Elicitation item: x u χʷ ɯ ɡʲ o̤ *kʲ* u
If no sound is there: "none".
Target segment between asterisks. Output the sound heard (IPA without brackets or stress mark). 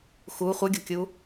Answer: kʲ